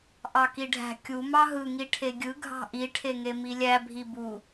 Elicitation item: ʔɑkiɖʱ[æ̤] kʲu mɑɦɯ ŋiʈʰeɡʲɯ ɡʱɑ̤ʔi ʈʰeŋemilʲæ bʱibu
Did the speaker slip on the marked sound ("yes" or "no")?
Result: no